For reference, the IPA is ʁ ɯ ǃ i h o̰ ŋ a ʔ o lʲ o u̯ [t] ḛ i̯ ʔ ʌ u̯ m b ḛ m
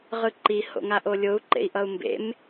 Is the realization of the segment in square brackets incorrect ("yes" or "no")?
yes